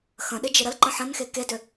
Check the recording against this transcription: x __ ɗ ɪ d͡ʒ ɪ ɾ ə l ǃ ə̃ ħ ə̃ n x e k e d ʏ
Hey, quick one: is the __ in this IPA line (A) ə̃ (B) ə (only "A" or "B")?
A